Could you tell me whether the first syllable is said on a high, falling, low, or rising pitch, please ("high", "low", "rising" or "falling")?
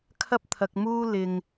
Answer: high